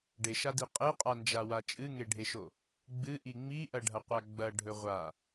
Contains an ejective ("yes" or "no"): yes